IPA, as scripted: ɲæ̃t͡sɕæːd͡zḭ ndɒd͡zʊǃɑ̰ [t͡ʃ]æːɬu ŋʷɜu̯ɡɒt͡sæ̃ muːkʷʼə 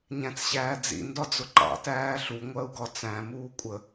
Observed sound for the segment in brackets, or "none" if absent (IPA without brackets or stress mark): t